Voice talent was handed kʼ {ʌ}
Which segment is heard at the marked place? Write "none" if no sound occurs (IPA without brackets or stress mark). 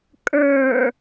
ə˞